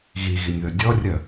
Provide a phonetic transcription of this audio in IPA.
ɣ i ɣ i nʲ ð ɵ dʲ ɔ rʲ œ

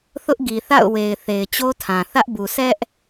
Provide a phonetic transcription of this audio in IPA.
θ ʊ˦ ʔ ɡ i˨ θ a̰˦˨ ʊ̯ w e˨ ɪ̯ θ e˨ ɪ̯ t͡ɕ o˦ tʰ ã˨ θ ä˦ ʔ b u˨ s ɛ˦ ʔ

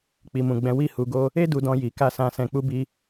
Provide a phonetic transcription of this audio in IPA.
k͡p i˨ m ũ˨ ɡ͡b ɛ̃˨˦ w i˦˨ h u˨˦ ɡ o˦ | e˦ d u˧ d ɔ̃˧ j i˨ k a˧ s ã˧ s ɛ̃˧ k͡p u˦ b i˦

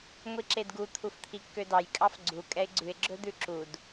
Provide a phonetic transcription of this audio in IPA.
ŋʷ i ǁ e d ɡ u t̪ʰ u f t̪ʰ i kː ø d ɑ j kʼ ɑ f ɡ͡ǀ u kʼ ɛ ɪ̯ ɡ͡ǀ ʉ ɪ̯ ɡ͡ǁ ɵ d̪ ʉ ǁ u d

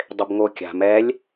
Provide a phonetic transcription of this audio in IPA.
dˤ ɪ b ŋ o kʲ a̤ m ɛ lʲ

